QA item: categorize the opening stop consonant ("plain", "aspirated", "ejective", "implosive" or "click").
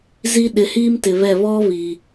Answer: implosive